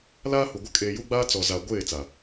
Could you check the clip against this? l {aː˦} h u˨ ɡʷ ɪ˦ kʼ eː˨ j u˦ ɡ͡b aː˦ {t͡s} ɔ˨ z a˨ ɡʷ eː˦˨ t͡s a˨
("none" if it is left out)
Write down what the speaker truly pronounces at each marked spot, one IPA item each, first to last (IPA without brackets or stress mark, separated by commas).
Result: aː˦, t͡s